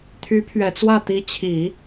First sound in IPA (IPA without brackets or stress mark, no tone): t̪ʰ